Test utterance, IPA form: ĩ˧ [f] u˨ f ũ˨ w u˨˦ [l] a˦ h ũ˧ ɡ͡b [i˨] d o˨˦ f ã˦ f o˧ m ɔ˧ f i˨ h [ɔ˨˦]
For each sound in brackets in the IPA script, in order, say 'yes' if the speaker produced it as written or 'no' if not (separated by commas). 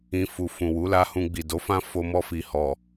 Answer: yes, yes, yes, no